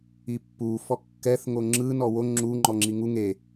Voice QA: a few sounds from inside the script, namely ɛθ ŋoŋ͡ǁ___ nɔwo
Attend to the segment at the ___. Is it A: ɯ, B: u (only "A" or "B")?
A